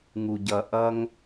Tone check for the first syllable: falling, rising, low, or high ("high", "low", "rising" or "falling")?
low